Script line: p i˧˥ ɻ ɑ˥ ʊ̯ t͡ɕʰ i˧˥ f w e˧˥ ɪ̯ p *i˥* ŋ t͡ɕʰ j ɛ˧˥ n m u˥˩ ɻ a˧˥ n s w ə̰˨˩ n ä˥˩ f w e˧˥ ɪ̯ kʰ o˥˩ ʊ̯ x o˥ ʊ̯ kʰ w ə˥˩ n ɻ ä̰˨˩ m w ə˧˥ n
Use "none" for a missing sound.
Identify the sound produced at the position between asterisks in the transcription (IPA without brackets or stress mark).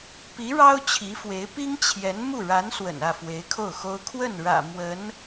i˥